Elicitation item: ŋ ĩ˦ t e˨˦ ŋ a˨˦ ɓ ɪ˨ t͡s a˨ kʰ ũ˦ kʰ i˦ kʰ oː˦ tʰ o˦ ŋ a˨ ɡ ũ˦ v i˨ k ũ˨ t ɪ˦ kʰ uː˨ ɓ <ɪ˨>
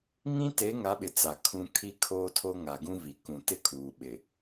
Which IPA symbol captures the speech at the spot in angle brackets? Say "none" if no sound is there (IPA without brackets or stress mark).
ɪ˨